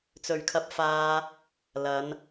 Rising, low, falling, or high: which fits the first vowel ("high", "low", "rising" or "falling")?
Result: low